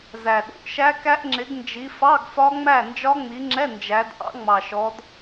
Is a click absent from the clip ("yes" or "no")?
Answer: no